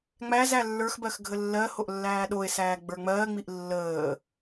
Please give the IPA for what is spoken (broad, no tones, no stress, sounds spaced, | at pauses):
ŋ͡m æ z æ lː ə˞ x b ɜ x ɡʱ ə lː ɜ h o ʔ lː æː ɗ o e̯ s æː ɡ͡b ə˞ ŋ͡m ɜː ŋ͡m i ʔ lː əː